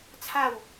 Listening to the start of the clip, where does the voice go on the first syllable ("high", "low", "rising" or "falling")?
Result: falling